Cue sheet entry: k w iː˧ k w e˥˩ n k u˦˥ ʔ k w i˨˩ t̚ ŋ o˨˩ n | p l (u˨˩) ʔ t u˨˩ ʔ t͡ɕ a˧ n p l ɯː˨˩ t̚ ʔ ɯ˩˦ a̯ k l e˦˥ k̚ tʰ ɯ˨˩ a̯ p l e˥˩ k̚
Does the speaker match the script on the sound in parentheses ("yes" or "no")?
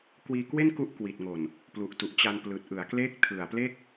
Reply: yes